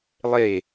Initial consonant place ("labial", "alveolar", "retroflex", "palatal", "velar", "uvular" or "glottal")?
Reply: alveolar